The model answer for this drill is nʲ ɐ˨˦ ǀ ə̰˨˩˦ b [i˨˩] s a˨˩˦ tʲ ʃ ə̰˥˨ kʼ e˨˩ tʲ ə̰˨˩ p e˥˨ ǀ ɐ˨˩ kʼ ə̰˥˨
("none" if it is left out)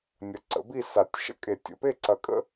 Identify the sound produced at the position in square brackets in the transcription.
i˥˨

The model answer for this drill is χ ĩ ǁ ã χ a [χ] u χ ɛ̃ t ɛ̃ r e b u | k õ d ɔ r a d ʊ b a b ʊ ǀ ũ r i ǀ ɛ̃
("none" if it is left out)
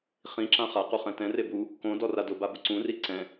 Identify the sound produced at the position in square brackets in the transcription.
q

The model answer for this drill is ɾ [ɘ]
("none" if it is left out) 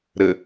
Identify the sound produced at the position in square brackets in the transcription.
ɘ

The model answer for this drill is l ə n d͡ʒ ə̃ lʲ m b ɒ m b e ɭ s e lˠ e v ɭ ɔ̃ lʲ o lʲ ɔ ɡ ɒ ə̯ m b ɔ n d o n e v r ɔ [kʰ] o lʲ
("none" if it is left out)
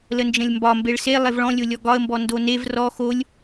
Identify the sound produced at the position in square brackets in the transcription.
x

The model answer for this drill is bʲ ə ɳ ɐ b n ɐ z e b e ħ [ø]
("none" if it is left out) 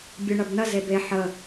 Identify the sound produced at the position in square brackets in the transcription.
ə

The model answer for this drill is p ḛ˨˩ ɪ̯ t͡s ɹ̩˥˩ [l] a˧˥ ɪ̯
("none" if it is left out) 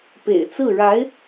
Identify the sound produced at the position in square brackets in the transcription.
ɻ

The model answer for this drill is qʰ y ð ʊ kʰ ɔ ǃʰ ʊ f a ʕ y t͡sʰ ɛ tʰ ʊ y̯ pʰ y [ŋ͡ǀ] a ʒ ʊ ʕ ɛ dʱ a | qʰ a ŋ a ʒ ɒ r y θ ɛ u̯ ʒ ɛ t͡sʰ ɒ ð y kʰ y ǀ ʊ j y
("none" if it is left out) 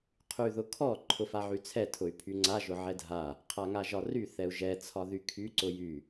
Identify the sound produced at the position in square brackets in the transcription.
ŋ͡ǀ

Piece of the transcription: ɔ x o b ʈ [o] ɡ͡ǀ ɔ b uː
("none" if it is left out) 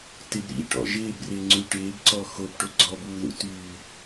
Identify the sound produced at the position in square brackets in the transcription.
o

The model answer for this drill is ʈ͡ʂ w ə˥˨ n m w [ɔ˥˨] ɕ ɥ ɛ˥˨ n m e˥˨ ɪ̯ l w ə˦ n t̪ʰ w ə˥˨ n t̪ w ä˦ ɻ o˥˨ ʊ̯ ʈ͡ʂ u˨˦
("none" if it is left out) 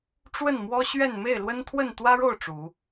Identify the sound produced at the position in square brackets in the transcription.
ɔ˦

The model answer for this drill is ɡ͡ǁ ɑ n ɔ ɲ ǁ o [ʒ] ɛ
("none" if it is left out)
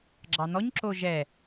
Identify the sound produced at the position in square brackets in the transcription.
ʒ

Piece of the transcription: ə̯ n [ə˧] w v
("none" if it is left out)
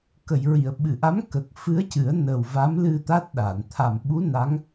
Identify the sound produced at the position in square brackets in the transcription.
ə˨˩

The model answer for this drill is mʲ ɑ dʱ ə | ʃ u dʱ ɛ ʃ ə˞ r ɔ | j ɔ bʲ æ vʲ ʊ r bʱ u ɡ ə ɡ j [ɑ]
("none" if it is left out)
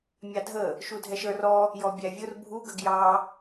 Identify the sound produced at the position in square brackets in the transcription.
ɑ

